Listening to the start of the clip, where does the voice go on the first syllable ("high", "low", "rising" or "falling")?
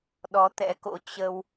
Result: rising